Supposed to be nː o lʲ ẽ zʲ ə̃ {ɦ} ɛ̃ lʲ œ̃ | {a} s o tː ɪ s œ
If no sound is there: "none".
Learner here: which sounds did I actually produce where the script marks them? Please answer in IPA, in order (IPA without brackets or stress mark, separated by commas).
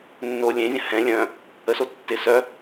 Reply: h, ə